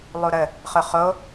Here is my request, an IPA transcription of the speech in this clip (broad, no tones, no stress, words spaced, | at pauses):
lˠuɾə | χʊχo